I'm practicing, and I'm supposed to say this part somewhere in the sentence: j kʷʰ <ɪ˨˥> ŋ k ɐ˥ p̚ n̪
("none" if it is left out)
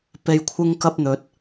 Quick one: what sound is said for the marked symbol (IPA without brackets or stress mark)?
ɪ˥